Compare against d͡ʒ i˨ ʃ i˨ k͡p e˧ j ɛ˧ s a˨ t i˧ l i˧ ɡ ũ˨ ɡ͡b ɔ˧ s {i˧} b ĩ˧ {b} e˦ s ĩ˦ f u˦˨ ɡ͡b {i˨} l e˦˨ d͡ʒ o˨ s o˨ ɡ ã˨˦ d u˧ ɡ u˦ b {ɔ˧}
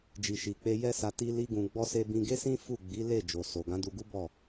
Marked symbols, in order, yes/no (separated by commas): no, no, no, no